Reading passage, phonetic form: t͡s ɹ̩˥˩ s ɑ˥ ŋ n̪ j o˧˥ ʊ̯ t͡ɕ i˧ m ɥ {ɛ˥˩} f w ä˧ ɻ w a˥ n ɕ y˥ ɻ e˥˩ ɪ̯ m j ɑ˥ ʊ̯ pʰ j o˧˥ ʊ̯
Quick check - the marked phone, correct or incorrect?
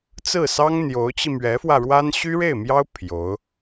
incorrect